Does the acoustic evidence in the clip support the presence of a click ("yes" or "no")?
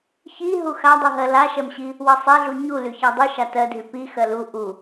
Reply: no